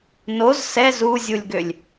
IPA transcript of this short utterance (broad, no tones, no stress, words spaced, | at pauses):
noz sɛz uzʲulʲɡølʲ